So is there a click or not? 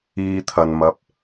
no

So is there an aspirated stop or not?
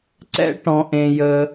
no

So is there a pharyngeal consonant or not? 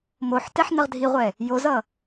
yes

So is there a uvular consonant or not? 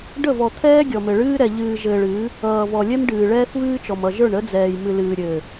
no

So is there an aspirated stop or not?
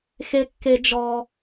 no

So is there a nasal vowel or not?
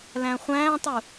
yes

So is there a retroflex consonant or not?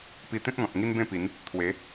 no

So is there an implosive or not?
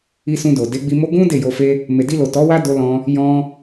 no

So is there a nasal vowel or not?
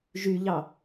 no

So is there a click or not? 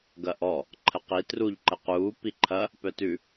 yes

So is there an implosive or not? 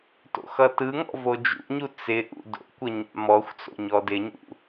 no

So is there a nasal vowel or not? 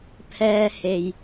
no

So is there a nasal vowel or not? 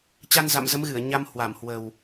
no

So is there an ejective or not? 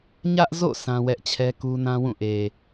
no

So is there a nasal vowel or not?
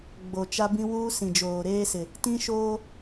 yes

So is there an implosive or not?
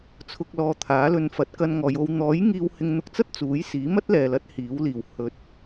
no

